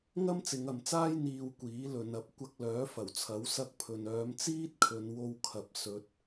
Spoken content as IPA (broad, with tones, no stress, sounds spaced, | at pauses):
ŋ ɐ˥ m t͡s ɪ˨˧ ŋ ɐ˨ m t͡s aː˥ j n̪ iː˧ w kʷ iː˨˥ l ɵ˨˧ n ɐ˧ p̚ kʷ ɐ˧ k̚ l œː˨˥ f ɐ˨˩ w t͡sʰ ɐ˨˥ w s ɐ˧ k̚ pʰ ɵ˨ n œː˨˧ m t͡s iː˥ t̚ kʰ ɵ˨˧ n w o˧ w kʰ ɐ˨ p̚ s ɵ˨˥ t̚